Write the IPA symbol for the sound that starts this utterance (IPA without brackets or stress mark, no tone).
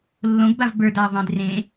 lː